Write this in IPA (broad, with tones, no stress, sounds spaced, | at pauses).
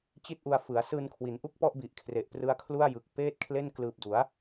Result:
t͡ɕ i˥˩ t̚ ʔ u˧ a̯ f ɯ˩˦ a̯ s ɯː˧ n kʰ w i˩˦ n ʔ u˥˩ k̚ p ɔ˥˩ ʔ b i˨˩ ʔ kʰ r e˨˩ ʔ p r ɯ˦˥ a̯ kʰ l u˥˩ a̯ j ɯ˨˩ k̚ p eː˥˩ t̚ kʰ l e˥˩ n k l ɯː˨˩ p̚ d u˩˦ a̯